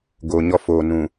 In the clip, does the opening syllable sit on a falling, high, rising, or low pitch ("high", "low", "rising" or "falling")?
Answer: low